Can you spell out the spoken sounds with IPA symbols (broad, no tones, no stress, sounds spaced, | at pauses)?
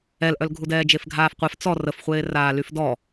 ɛ l ʔ œ l ɡʱ u d ɛː d͡ʒ e f ɡʱ aː f qʷ ɛ f t͡s ɔ r ə f χʷ eː r aː l y f d ɔ